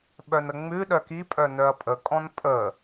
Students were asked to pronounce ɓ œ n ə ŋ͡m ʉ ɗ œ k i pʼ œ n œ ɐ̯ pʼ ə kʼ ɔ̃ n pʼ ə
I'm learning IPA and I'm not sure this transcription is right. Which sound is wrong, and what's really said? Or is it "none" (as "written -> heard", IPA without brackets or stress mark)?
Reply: none